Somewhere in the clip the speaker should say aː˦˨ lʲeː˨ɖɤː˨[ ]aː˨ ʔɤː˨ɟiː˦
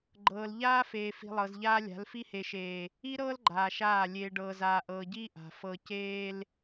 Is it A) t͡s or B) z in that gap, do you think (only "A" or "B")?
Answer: B